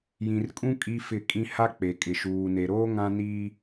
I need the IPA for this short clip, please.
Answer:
jĩ˨rkʼũ˦ kʼi˦fɪ˦˨kʼĩ˦ ha˦k͡pe˨kʼɪ˨ ʃuː˨ne˨ɾoː˦ ŋã˦ niː˦

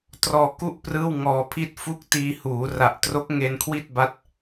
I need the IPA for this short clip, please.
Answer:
trɔː˧ku˥˩ʔ prɯː˥˩wŋɔː˧pʰi˥˩t̚ fu˦˥k̚tiː˧huː˩˦ ra˨˩ʔtro˦˥k̚ŋe˧n kʰwi˥˩t̚ba˦˥t̚

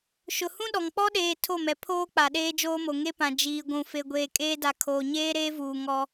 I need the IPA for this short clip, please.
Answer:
ʃʊ˨hũ˦ ɗɔ˨ŋ k͡pɔ˦ɗeː˨ tʰo˦˨mɛ˨ pʰoː˦ k͡pa˨ɗeː˦d͡ʒoː˦mo˨ ŋe˦pã˨ d͡ʒiː˨ɡʷũ˨ fe˨ɡʷeː˨ kʼeː˦da˨ kʰoː˨ɲeː˦ɾeː˦vuː˨ ŋɔ˦

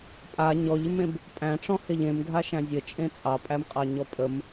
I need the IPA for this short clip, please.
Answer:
pʼa ɲɔʎɪmẽb | pʼæ̃ʈ͡ʂɔ̃heʎ ẽmɡʱaʃæ̃ zʲət͡ʃʼẽ t͡sʼɑpʼæmqʼɑɲɔ pʼəm

